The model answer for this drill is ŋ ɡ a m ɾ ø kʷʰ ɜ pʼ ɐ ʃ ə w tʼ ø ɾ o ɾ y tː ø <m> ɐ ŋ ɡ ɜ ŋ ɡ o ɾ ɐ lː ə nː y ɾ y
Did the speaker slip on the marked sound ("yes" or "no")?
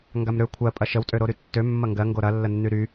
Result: yes